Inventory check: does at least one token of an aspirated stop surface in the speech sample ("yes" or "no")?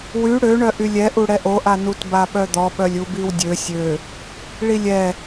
no